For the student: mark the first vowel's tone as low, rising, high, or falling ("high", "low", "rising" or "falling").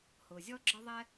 low